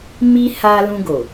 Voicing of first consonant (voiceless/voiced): voiced